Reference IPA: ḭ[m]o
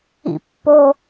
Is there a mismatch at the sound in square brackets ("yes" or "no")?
yes